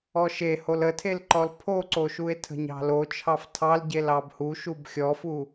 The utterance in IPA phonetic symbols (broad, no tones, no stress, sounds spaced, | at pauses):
ɔ ʃ e h o l ə tʰ e l ǃ ɔ l pʰ o ǀ o ʃ u e̯ tʰ ə̤ ɲ ɑ̤ l o t͡ʃʰ ɑ f tʰ ɑ l ɟ e l ɑ b h u ʃ u b xʲ ɔ f u